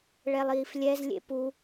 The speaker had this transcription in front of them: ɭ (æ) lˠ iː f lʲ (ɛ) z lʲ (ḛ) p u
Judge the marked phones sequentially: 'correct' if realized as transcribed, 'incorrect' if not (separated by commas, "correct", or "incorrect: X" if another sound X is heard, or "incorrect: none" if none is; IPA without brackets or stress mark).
incorrect: ɛ, correct, correct